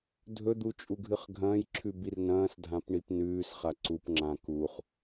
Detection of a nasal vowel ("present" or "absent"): present